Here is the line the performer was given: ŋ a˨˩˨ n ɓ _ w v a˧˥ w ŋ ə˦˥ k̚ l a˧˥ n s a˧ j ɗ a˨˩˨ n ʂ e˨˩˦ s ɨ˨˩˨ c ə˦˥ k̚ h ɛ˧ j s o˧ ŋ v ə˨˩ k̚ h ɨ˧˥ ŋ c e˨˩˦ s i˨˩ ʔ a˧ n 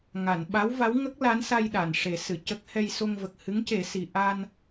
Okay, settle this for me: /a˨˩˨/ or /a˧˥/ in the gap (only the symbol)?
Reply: a˧˥